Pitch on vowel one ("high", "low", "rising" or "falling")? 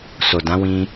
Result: low